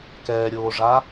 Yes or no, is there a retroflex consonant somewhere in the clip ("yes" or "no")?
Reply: yes